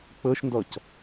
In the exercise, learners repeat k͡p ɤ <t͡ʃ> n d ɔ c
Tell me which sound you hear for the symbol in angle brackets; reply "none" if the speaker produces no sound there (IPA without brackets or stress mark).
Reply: ʃ